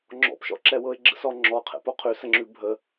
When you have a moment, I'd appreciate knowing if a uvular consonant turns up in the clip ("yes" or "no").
yes